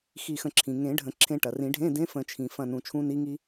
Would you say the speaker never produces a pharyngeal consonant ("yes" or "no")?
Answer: yes